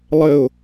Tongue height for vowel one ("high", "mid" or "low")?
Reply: mid